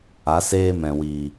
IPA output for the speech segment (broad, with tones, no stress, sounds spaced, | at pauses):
a˨˦ s eː˦ m ɛ̃˨ w i˨